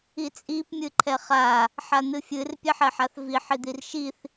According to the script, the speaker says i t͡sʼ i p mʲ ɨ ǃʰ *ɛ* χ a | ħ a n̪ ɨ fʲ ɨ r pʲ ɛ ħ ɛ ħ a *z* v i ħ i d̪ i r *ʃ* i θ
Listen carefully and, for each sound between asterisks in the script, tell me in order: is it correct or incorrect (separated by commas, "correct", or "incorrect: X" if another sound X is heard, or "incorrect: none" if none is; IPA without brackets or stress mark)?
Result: correct, incorrect: θ, correct